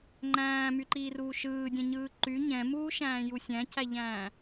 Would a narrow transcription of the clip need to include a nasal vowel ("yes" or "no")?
yes